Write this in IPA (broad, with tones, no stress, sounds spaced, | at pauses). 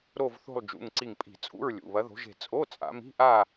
ɾ o˥˧ v θ o̤˥˧ lˠ d͡ʒ ṵ˩˧˩ ŋ ǀ i˧˩ ŋ pʼ i̤˧˩˧ t͡sʼ ṵ˧˥˧ ɹ lʲ ṵ˩˧˩ β ɐ˨˦ ð o̤˨˦ ʒ e̤˧˩ t͡sʼ o˧˥˧ t͡sʼ a̰˨˦ m i̤˧˥˧ ʔ a˥˧